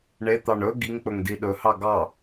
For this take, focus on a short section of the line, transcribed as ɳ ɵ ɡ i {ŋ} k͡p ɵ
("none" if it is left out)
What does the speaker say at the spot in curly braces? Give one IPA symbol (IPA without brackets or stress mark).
ŋ